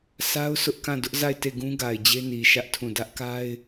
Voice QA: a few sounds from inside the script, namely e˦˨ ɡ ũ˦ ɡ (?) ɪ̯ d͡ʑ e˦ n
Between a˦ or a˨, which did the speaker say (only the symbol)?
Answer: a˨